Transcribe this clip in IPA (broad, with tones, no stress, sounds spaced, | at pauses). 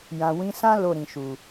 j ã˨ w ĩ˨˦ s ã˦ l o˦˨ ɾ ĩ˨ ʃ u˨